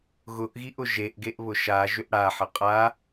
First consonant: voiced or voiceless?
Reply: voiced